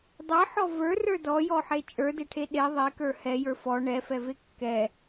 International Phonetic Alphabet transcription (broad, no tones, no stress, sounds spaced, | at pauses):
dˤ e ħ ɔ v ə˞ r ə˞ d ɔ j ɔ ħ e t͡ʃʼ ə˞ d e ʈʰ e ɗ e ðˤ e k ə˞ h ɛ j ə˞ f ɔ ɳ ɛ f ɛ v e kː ɛ